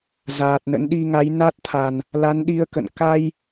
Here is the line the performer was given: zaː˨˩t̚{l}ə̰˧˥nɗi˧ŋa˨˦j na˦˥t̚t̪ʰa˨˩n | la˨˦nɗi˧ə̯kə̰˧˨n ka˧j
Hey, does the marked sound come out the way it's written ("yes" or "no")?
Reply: no